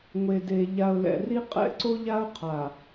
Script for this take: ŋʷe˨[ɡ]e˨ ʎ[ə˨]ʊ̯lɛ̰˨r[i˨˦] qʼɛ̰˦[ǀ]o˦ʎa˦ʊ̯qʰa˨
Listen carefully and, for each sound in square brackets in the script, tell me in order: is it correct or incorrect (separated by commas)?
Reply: incorrect, incorrect, incorrect, correct